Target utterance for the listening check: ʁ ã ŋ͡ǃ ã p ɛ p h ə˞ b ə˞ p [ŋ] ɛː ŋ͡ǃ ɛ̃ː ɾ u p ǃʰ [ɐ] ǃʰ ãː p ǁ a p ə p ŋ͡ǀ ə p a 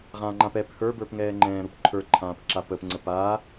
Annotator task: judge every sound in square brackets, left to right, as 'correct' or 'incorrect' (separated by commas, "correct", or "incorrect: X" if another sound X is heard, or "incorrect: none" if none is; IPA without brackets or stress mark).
correct, incorrect: ə˞